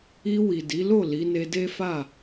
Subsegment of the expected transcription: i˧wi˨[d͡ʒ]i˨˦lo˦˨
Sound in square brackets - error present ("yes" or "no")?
yes